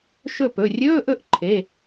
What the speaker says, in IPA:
ʃ ɵ˥˩ p ɵ˩˧˩ rʲ ɵː˧˥˧ ʔ ɵ˥˩ ʔ ǃʰ e˩˧˩

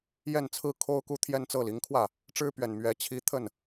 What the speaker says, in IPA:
j ɛ˥˩ n t͡sʰ ɹ̩˥ kʰ o˥ ʊ̯ k u˥˧ t̪ʰ j ɛ˥˧ n t͡s ɤ˥˩ l i˧˥ ŋ kʰ w ä˥˩ | ʈ͡ʂ ɻ̩˥ p ɥ ɛ˨˩ n m ɥ ɛ˧˥ t͡ɕʰ i˧˥ t̪ʰ ə˥˩ n

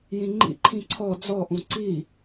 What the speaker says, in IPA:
j ĩ ŋ͡ǃ ḭ ǃʰ ĩ ǀʰ ɔ d͡z ɔ ʔ ũ ǀ i

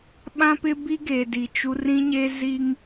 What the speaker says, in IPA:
ɓ ã˦ p ɪ˦ b i˦ ɡ e˨ d i˨ t͡ʃ u˦ r ĩ˦ ɲ e˦ z i˦ ŋ

